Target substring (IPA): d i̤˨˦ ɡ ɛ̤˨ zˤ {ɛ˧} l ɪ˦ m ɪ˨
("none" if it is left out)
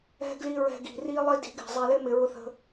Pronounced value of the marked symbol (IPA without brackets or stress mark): ɛ˧